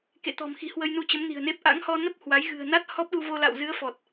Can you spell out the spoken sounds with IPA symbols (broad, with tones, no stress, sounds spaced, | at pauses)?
k ḛ˧˨ t̪ ɔ̤˨˩ m x i̤˨˩ h w ə˧ j n u˧ t͡ɕ ə˨˦ m n i̤˨˩ ə̯ n e˦˥ p̚ ʔ a̰˧˥ ŋ h ɔ˧ n ə˦˥ p̚ h w a˨˦ j ɣ ɨ̤˨˩ ə̯ n a˦˥ t̚ h ɔ˦˥ p̚ ɗ u˧ v o˧ l a̰˧˨ w z ɨ˨˦ ə̯ f ɔ˨˩ t̚